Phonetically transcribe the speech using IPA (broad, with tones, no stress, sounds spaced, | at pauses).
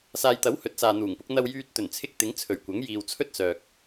s aː˨ j t̪ ɐ˨˥ w h ɵ˨˥ t̚ s aː˨ n̪ uː˨˩ ŋ p ʊ˨˥ k̚ n̪ ɐ˧ w j yː˧ t̚ t̪ ɵ˨˩ n t͡sʰ ɪ˧ k̚ t̪ ɪ˨˥ ŋ t͡sʰ ɵ˨˩ ɥ kʷ ɐ˨˥ ŋ j iː˨ w t͡sʰ ɵ˥ t̚ s œː˨ k̚